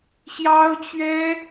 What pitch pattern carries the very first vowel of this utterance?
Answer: high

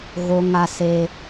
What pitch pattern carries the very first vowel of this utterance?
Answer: high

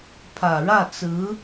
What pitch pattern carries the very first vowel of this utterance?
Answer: low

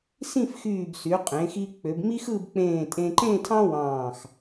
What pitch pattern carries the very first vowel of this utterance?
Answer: falling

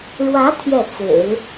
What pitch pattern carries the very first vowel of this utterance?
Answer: rising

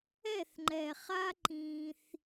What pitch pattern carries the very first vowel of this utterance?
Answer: falling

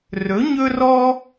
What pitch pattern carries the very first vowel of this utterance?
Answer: rising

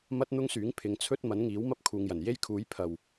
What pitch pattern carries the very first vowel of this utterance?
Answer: high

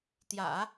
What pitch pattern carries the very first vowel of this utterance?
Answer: low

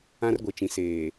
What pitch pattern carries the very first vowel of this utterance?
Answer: high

